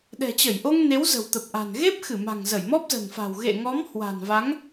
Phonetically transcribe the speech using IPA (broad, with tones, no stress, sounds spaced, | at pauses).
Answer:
ɗ ɛ̤˨˩ t͡ɕ ə˧˩ j ʔ o˧ ŋ n e˨˦ w z ə̤˨˩ w t̪ ə˨˩ p̚ ʔ a̤˨˩ n ɣ e˦˥ p̚ x ɨ˧˩ m a̤˨˩ ŋ z ə˧˩ j m ɔ˦˥ p̚ z ə̤˨˩ n f a̤˨˩ w ɣ ḛ˧˨ ŋ ɔ˨˦ m h w a̤˨˩ n v a˨˦ ŋ